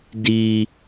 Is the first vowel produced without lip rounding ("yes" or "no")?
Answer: yes